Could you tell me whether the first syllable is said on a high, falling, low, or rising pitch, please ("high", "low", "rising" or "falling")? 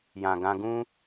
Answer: low